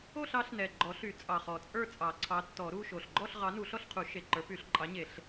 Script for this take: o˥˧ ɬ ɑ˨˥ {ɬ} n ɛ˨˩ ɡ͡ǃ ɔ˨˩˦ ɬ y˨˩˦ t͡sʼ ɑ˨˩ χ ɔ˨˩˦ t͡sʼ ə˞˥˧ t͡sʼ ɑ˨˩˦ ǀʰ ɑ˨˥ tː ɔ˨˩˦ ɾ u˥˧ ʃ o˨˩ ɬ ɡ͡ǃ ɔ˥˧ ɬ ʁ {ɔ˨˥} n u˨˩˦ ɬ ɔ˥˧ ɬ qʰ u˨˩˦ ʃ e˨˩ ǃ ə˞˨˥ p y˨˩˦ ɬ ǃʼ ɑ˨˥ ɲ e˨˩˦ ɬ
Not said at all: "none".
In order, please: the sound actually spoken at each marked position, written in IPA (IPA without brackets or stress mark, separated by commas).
ɬ, ɑ˨˥